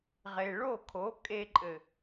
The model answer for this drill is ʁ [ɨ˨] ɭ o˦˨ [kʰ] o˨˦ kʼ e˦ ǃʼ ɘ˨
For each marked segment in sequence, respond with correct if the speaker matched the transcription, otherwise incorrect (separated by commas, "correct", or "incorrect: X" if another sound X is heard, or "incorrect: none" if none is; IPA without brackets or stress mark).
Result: incorrect: e˨, correct